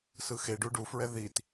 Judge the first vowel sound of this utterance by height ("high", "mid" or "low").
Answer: high